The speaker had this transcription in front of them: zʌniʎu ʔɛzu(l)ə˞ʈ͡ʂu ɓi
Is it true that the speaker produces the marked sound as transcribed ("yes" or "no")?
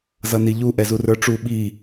no